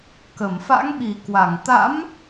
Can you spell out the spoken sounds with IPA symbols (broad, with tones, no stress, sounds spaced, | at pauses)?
k ə˧˩ m f a̰˧˥ ŋ ɓ i˨˩ k w a˧˩ ŋ t̪ a̰˧˥ m